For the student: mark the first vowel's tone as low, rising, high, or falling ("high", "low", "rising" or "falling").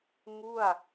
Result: falling